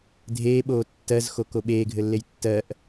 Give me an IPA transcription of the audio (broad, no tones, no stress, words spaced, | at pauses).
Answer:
dʱeːɓoː tːɜzxoko ɓeːɡʱɘlːej tːɜʔ